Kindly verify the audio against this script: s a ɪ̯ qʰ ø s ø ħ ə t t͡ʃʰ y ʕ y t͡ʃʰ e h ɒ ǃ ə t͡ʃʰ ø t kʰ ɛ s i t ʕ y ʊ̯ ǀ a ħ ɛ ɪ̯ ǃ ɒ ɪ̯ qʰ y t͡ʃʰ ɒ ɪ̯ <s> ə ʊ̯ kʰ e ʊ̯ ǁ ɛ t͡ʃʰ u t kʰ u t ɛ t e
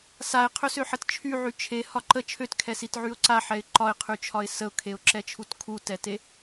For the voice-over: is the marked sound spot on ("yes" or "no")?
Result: yes